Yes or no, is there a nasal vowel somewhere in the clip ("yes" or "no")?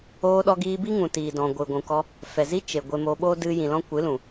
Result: yes